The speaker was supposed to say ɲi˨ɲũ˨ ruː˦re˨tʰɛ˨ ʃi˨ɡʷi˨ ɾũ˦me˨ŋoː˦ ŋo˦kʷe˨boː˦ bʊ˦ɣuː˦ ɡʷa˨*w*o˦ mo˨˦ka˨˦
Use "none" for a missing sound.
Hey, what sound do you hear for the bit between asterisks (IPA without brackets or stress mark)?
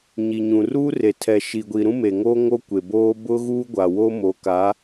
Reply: w